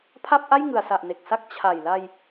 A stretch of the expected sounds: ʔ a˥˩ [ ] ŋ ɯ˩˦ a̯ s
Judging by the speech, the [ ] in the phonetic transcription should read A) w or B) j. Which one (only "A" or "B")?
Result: B